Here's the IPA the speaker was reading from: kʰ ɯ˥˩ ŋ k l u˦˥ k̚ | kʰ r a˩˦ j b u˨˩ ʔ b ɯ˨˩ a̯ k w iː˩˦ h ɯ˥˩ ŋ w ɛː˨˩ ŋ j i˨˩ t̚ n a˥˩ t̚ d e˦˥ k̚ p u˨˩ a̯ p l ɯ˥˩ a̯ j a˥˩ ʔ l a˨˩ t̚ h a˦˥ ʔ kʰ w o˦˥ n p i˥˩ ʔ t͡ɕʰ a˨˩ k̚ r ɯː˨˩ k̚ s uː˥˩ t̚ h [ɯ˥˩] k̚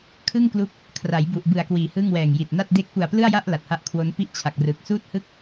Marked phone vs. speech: correct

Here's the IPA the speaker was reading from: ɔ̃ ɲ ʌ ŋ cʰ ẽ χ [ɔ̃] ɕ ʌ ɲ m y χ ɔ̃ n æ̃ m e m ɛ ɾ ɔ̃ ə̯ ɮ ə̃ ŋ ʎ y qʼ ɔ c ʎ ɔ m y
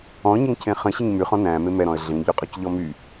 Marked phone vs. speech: incorrect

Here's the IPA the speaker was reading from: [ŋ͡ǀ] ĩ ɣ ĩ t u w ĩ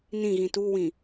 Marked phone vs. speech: incorrect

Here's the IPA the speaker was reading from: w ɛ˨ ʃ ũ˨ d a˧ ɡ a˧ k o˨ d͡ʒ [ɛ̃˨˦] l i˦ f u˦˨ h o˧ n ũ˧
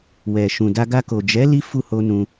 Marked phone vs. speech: incorrect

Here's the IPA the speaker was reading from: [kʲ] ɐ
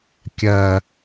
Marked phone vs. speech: correct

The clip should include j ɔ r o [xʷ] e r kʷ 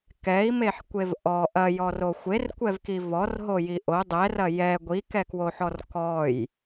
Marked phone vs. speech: correct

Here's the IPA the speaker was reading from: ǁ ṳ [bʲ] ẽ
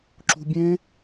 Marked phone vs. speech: correct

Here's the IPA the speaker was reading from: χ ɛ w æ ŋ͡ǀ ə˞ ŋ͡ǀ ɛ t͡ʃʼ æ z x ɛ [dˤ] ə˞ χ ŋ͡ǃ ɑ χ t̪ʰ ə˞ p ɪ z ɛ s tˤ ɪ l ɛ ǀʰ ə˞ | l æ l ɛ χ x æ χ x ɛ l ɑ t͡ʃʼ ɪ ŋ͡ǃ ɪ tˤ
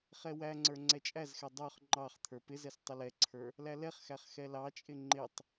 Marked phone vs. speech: correct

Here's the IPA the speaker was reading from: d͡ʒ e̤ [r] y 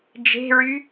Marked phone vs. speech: incorrect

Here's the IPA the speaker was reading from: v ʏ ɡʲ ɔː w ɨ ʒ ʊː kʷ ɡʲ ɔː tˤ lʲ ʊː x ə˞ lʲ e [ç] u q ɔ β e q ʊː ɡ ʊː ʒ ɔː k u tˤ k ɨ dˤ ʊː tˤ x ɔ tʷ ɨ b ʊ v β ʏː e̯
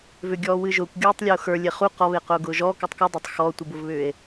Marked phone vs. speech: incorrect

